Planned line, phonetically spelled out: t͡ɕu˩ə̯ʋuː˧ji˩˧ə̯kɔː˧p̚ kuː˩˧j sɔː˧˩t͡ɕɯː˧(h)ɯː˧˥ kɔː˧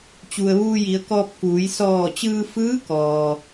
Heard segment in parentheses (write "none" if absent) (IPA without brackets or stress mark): f